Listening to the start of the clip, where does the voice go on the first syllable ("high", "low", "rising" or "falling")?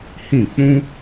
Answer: falling